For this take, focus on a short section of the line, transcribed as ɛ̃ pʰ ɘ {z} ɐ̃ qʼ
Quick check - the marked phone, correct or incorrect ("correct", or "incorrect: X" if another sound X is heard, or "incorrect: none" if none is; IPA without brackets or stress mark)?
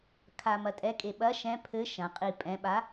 incorrect: ʃ